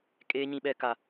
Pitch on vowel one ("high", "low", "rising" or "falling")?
high